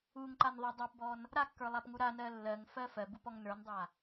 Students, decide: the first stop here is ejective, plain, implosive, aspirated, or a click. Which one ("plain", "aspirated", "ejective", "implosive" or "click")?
click